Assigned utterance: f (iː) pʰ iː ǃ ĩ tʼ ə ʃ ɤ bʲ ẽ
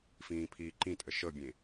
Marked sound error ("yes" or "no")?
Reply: yes